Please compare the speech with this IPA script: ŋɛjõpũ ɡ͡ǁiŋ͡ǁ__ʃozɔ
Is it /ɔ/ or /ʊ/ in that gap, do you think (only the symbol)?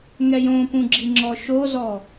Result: ɔ